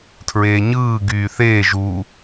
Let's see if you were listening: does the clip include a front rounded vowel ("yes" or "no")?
yes